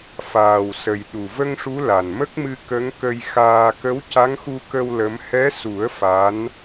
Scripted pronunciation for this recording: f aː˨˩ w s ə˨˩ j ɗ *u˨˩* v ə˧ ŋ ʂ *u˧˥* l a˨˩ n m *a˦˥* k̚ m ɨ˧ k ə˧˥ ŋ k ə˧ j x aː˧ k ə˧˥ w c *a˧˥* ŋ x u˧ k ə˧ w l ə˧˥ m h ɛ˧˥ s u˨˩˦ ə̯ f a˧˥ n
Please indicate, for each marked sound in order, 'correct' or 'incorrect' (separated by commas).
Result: correct, correct, incorrect, correct